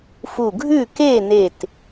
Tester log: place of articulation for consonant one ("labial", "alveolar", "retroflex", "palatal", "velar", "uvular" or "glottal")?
labial